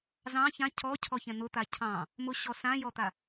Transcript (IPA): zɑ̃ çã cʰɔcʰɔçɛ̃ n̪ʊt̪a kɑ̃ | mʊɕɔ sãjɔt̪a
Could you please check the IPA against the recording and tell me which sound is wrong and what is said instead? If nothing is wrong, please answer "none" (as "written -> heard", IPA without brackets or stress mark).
k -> cʰ